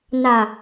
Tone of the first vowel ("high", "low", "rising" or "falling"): low